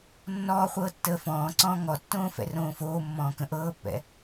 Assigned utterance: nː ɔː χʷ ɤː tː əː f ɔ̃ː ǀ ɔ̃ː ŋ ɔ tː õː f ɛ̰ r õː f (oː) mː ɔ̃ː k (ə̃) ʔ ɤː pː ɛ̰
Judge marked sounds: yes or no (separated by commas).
yes, yes